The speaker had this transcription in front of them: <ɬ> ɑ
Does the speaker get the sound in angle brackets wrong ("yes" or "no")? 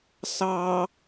yes